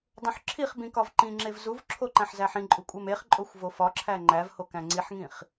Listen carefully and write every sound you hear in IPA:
dˤ õ ħ ǁʰ i χ b ĩ k ɒ v ǃ ĩ ŋ͡ǁ e v z u v ǁʰ o ǃ æ̃ ħ z æ ħ ĩ ǃʼ u kʷʼ e m e χ ǃʼ o xʷ v o f ɒ ǁʰ æ ŋ͡ǃ æ v h o k æ̃ ŋ͡ǀ i ħ ŋ ĩ χ

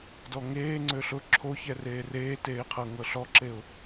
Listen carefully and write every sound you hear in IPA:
d ɔ ŋ eː ŋ͡ǀ ø ɬ ʊ ǁʰ o ç ɛ r eː r eː t eː qʰ ɤ ŋ ɤ ɬ ɔ ǁ e ʊ̯

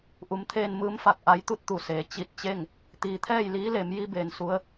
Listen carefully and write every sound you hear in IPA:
ʔ u˩˧ m t̪ʰ eː˧ n m ɯː˧˥ m f a˧˩ k̚ ʔ a˧˥ j t̪ u˥˨ t̚ t̪ u˧˩ s eː˩˧ t͡ɕ i˧˩ t̚ t͡ɕ e˥˨ ŋ | t̪ iː˩ t̪ʰ ɛː˥˨ j l iː˧˥ l e˩˧ m j i˧ b eː˩ n s u˧˥ ə̯

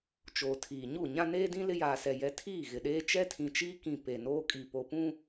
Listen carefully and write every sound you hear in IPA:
t͡ʃ oː˨ tʰ iː˨ ɲ u˦˨ ɲ ã˦ n eː˦ d ĩ˦ l ɪ˦ j aː˨ s ɛ˨ j ɛ˨ tʰ iː˦˨ ɣ ɪ˨ ɗ eː˦ t͡ʃ ɛ˦ tʰ ĩ˨ t͡ʃ iː˦ k ĩ˨ p e˨ n oː˦ kʼ i˨ p o˨ p ũ˦

